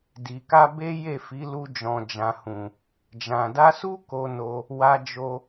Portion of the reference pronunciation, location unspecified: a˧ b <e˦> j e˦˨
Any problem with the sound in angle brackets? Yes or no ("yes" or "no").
no